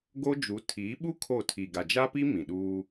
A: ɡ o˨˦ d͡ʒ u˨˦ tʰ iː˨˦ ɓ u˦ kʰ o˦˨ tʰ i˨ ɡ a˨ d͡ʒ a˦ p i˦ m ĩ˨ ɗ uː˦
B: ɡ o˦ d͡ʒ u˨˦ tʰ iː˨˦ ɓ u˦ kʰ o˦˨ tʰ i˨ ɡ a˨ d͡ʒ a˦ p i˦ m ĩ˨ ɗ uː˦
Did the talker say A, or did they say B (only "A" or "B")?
B